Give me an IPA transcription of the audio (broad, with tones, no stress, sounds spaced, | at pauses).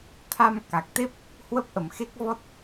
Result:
t̪ʰ a˧ m k a˨˩ k̚ t̪ e˦˥ p̚ | h w ə˦˥ p̚ ʔ ə˨˩ m x e˦˥ k̚ v ɔ˦˥ t̚